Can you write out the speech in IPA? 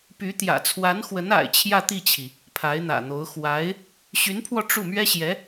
p y˧˥ t̪ j ä̰˨˩ t͡sʰ w a˧˥ n x w ə˧˥ n a̰˨˩ ɪ̯ t͡ɕʰ j ä˥˧ t̪ i˥˩ t͡ɕʰ i˩ | pʰ a˧˥ ɪ̯ n̪ ä̰˨˩ n̪ o˧˥ ʊ̯ x w a˧˥ ɪ̯ | ɕ y˧˥ n pʰ w ɔ˧ ʈ͡ʂ u˥˩ m ɥ ɛ˥ ɕ j ɛ˧˥

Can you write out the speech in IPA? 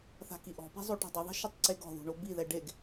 θ a̤ k i ʔ ɔ̤ p i̤ zˤ o ʈ ɛ̤ dˤ ɪ ðˤ i̤ ʃ ʊ tˤ ǀ e ɡ ɔ̤ ð ṳ ɳ o b i ð ɛ ɖ e ɡ

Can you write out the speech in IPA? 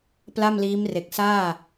p l a˥˩ m l iː˦˥ m r e˨˩ k̚ s aː˥˩

